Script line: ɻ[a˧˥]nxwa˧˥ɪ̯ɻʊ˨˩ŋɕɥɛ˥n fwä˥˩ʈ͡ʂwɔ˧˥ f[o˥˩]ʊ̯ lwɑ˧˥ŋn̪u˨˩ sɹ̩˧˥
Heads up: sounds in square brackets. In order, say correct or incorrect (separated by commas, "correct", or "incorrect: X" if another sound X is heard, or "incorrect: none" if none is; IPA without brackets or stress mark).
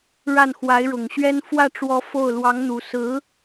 incorrect: a˥˩, correct